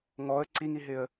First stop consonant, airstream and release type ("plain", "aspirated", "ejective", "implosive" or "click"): click